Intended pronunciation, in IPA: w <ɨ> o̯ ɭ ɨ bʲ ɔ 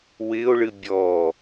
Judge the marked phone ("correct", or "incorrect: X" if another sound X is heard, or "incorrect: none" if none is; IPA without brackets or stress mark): incorrect: ɪ